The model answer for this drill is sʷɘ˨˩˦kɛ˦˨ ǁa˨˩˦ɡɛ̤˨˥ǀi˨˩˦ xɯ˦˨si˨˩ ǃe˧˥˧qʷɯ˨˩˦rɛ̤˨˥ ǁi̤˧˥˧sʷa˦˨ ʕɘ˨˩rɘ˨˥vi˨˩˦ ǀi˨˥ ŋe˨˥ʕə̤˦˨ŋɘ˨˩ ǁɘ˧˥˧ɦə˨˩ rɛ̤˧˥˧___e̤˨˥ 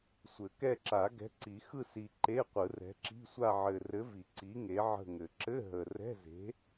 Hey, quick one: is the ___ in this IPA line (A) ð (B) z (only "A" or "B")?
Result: B